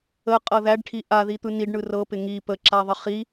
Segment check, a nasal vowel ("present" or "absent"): absent